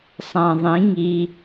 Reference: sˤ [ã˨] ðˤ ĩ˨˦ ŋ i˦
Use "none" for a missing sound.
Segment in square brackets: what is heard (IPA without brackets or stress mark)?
ã˨